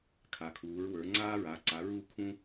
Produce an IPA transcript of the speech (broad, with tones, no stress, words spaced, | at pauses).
kʰa˩˧kʰuː˩˧ɹwə˞˩˧ ŋ͡ǀaː˦ɹaː˩˧ ǀa˩˧ɹu˦ kʰũ˦